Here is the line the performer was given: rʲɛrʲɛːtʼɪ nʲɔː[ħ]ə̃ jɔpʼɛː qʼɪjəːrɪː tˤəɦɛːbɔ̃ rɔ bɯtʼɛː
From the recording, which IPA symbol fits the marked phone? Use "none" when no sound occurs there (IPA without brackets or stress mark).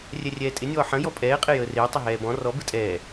ħ